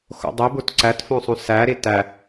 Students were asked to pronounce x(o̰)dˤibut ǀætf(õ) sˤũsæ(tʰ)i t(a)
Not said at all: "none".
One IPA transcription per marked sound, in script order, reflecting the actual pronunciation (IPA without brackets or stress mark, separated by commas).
o̰, õ, ɾ, æ